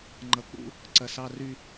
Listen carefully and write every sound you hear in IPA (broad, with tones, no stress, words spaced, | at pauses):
ŋ͡ǃʌ˨k͡pṵ˦ | ǀɐ˨sɑ˧ry˧